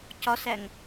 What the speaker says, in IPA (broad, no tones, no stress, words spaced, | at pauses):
cɒsæŋ